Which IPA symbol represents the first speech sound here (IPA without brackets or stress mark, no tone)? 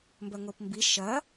m